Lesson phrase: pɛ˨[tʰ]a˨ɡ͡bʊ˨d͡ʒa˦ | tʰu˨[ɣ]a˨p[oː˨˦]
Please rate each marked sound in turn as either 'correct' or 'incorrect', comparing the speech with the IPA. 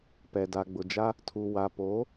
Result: incorrect: d, incorrect: w, correct

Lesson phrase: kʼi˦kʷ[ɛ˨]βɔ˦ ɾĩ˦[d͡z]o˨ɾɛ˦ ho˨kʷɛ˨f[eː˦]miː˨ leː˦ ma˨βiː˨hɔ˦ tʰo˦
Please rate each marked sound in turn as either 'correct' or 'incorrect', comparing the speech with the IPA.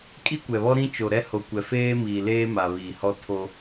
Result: correct, incorrect: t͡ʃ, correct

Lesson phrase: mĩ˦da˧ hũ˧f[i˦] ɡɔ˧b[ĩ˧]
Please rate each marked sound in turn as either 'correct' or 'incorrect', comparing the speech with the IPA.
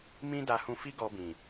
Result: correct, incorrect: ĩ˨

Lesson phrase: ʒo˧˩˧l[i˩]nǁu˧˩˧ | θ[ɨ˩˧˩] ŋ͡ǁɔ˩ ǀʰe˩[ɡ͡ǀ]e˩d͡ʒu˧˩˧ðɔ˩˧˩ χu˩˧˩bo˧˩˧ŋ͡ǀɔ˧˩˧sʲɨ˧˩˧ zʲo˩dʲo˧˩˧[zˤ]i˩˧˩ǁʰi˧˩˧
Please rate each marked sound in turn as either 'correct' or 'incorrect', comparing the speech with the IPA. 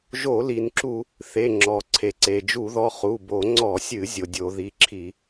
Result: correct, incorrect: e˩˧˩, incorrect: ǀ, incorrect: ð

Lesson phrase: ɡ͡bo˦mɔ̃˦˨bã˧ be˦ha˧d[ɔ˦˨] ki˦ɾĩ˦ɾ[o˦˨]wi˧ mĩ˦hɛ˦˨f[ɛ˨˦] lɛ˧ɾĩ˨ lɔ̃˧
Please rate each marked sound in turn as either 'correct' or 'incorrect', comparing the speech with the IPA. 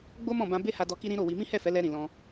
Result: incorrect: ɔ˧, correct, correct

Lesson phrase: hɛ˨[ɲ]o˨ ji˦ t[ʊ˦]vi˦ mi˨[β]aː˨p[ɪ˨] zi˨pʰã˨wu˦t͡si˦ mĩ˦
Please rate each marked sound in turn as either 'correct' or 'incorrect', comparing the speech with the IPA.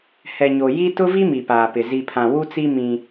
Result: correct, correct, incorrect: p, correct

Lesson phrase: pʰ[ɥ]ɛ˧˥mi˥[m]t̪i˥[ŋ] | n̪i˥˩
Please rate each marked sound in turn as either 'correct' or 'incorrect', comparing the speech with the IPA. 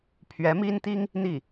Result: correct, incorrect: n, correct

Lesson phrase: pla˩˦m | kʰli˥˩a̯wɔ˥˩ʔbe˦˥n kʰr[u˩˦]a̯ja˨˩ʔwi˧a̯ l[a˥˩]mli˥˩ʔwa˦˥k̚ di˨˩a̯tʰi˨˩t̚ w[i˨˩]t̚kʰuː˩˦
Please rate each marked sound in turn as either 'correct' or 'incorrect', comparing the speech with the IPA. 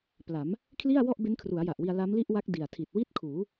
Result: correct, incorrect: a˦˥, incorrect: i˥˩

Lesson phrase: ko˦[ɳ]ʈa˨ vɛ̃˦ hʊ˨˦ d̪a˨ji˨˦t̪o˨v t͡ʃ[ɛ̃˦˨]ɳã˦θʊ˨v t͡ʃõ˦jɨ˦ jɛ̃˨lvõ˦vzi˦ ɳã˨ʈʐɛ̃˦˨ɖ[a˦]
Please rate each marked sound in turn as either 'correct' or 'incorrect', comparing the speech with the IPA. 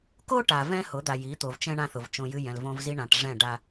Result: incorrect: none, incorrect: ɛ̃˦, correct

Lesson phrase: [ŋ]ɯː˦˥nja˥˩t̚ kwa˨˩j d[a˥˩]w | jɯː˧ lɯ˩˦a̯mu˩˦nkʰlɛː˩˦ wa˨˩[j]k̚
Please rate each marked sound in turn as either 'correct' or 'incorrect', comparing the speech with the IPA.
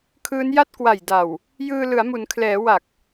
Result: incorrect: kʰ, incorrect: a˨˩, incorrect: none

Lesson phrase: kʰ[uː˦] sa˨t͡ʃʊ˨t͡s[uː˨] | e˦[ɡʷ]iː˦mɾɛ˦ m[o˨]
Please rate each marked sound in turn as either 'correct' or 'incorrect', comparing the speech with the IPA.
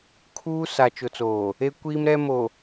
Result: correct, incorrect: oː˨, incorrect: kʷ, correct

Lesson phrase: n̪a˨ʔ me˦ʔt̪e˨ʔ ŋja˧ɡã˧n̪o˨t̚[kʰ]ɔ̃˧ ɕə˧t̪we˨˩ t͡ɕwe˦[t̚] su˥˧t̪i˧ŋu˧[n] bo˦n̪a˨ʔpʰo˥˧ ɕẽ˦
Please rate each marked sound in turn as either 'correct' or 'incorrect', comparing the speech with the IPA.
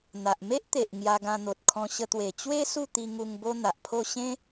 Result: correct, incorrect: none, incorrect: ŋ

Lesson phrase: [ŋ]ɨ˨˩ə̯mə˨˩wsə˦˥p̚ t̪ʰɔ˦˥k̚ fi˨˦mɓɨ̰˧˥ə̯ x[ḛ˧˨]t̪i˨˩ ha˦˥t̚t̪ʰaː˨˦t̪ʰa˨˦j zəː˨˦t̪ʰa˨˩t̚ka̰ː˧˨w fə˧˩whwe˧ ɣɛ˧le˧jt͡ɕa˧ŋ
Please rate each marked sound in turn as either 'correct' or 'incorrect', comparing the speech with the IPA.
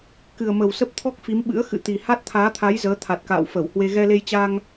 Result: incorrect: k, incorrect: ɨ̰˧˨

